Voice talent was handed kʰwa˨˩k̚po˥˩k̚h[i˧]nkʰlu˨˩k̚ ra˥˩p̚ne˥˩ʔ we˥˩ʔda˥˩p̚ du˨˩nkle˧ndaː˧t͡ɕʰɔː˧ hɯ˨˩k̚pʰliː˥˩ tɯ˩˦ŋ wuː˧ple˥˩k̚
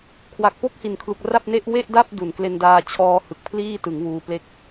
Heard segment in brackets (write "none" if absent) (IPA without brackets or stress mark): i˨˩